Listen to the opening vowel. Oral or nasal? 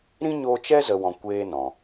nasal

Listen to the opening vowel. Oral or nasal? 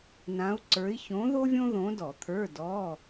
nasal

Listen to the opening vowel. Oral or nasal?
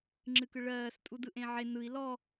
oral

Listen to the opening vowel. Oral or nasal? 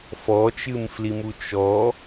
oral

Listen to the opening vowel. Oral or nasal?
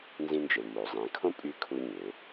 nasal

